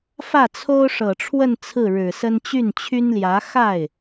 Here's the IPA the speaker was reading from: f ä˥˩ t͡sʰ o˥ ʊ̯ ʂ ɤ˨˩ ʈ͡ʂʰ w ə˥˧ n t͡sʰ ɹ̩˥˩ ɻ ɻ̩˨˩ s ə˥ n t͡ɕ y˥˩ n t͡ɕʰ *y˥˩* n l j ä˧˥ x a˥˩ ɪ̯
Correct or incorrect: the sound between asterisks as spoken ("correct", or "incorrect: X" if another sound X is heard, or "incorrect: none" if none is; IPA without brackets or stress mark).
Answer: incorrect: y˥